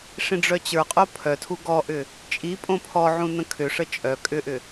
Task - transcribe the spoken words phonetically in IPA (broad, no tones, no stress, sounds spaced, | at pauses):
ʂ ĩ ɖ͡ʐ œ t͡ɕ ə˞ qʼ o pʰ œ tʰ u ɡ ɔ ʔ ʏ | t͡ʃʼ i pʼ õ pʰ ɔ ʕ ũ n ə̃ kʰ ʏ ʂ ə t͡ʃʼ œ kʼ ʏ ʔ ʏ